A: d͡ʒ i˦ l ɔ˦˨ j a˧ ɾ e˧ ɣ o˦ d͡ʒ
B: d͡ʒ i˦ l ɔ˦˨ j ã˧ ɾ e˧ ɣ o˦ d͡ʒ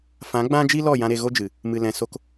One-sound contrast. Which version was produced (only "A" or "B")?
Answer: B